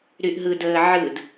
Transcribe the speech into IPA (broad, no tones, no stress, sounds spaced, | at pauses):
ɾ y ʔ ɦ ɯ d əː ʕ ɯ d